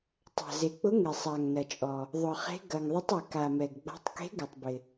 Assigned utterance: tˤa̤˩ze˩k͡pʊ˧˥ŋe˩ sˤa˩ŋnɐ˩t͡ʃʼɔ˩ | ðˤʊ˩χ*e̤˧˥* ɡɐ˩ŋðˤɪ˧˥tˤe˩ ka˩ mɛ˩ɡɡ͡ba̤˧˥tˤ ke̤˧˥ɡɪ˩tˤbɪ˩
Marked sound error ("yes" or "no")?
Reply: no